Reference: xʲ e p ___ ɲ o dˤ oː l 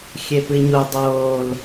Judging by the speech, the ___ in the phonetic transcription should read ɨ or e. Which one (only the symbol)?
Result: ɨ